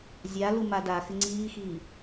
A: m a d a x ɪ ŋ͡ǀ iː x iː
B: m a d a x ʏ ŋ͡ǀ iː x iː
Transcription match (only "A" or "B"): A